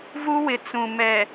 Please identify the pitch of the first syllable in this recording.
high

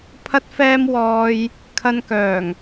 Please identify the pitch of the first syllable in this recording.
high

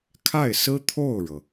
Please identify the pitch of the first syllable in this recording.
falling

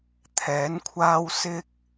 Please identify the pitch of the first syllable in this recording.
rising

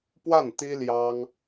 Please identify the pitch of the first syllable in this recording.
falling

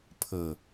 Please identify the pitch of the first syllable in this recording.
low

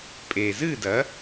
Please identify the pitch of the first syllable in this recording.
low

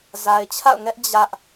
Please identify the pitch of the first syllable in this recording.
low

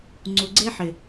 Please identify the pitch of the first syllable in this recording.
low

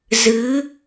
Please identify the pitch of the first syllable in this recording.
rising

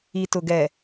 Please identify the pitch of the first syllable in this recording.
low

